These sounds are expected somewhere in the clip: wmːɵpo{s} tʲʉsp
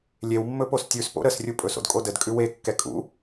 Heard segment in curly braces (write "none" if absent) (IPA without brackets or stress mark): s